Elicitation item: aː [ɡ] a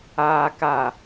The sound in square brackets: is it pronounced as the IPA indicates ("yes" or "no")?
no